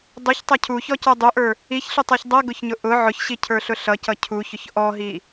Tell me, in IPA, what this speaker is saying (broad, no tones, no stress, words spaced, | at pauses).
dˤuçtˤʌ cʰuçɔcə˞ dˤuʔə˞ | içɬʊtˤə˞ç dˤʌɡʊçɲʊ ʔʊ ʕʊçɕicʰə˞ɬʊ ɬʌcʌ cʰuçʊç ʔɔɦi